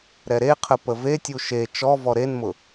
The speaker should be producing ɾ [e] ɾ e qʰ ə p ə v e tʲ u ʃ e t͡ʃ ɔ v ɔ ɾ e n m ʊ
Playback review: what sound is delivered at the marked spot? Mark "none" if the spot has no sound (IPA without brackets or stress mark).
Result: ɛ